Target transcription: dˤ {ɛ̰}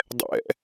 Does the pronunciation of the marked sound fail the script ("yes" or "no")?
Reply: no